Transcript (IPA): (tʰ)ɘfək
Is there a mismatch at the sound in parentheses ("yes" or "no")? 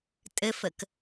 yes